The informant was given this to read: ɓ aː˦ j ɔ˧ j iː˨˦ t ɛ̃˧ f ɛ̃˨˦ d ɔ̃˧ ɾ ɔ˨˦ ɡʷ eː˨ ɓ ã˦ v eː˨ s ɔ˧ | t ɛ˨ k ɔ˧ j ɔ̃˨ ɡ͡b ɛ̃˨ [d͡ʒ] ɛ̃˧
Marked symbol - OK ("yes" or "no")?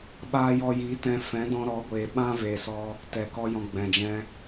yes